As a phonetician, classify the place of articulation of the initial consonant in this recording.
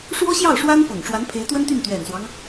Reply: retroflex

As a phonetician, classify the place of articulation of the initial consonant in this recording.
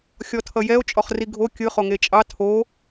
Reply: velar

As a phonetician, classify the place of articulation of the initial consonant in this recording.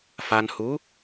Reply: labial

